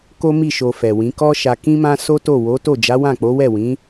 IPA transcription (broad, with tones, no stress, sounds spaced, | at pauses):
k o˦ m i˦˨ ʃ o˧ f ɛ˨ w ĩ˨˦ k ɔ˦ ʃ a˧ k ĩ˧ m ã˧ s o˦ t o˦˨ w o˨˦ t o˦˨ d͡ʒ a˨˦ w ã˦˨ k͡p o˨˦ w ɛ˦˨ w ĩ˨˦